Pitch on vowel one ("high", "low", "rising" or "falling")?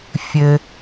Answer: low